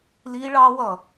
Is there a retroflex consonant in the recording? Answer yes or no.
yes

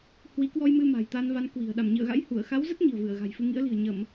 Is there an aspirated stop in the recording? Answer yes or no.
no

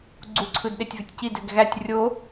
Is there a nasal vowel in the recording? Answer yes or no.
no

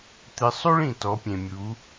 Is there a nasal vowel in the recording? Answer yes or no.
yes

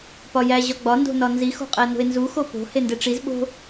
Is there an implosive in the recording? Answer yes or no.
yes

